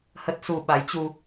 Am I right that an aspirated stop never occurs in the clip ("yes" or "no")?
yes